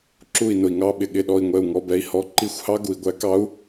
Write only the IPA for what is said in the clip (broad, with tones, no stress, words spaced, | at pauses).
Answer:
ǁu˥˩i̯nʊ˨i̯ŋɑ˧˥˧ ɓɪ˨ ɠɪ˥˩ɗɔ˥˩i̯ŋʷɛ˥˩u̯ŋɔ˧˥˧ bɛ˧˥i̯hɔ˧˥ ǃi˥˩xʷhɑ˥ ɡu˨i̯ɡʷæ˧˥kɑ˧˥u̯